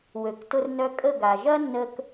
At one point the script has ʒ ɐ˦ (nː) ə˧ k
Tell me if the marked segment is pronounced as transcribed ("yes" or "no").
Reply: yes